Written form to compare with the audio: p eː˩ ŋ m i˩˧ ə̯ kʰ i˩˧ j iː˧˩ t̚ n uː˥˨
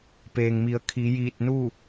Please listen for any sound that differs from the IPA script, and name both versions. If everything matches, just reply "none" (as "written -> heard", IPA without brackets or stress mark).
none